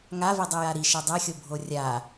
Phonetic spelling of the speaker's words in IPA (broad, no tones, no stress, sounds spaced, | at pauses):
ŋ a v i dˤ i j a ɾ i ʃ ɘ dˤ ɛ xʲ o bʱ o rʲ a